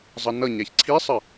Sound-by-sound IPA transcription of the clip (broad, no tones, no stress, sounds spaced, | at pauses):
zˤ ʌ n ʌ ɲ æ ç ǀʰ i sˤ ə